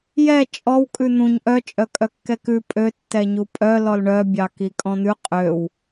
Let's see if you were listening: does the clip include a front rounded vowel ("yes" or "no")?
yes